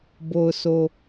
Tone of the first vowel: low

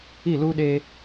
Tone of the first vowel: falling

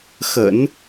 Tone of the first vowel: low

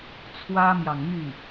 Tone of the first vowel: high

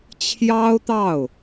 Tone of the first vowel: high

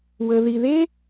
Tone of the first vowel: low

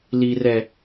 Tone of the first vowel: high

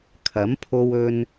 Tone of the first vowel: rising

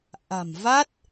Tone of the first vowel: low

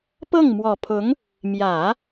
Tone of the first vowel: falling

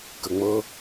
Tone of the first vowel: low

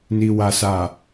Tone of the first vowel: low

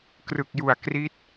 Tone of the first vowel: low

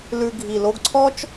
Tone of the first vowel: low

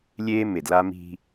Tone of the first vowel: high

